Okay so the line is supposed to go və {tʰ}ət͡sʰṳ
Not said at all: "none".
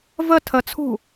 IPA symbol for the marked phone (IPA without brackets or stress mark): tʰ